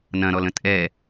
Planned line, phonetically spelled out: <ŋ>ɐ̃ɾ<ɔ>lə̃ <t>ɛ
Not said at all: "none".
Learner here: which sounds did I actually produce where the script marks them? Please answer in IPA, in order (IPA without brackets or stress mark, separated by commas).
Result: n, ɔ, tʼ